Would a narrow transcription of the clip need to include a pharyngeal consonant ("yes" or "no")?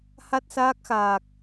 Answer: no